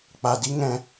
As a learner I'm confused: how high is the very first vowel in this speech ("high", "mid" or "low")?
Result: low